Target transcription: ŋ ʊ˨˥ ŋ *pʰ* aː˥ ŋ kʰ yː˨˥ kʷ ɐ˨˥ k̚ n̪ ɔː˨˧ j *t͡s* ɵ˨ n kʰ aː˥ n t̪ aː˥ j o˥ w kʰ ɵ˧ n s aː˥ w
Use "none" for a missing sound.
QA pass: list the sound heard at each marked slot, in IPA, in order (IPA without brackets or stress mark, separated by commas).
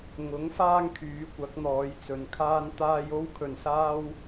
f, t͡s